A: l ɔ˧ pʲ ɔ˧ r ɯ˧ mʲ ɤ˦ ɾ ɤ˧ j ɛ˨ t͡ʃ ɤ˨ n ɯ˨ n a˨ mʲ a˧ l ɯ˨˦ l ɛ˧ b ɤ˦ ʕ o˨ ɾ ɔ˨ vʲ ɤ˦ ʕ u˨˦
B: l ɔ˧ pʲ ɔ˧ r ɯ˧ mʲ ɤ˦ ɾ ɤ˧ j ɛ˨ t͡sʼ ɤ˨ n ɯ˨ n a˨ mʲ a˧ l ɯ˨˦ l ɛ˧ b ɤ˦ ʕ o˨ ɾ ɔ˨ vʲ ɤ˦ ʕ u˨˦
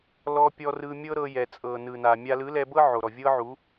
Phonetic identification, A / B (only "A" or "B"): B